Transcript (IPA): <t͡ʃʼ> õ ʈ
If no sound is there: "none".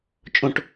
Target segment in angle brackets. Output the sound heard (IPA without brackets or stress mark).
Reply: t͡ʃʼ